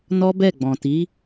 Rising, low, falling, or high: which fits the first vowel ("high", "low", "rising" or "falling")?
high